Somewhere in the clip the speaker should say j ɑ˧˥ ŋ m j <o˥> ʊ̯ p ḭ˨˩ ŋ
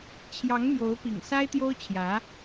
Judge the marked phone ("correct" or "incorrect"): incorrect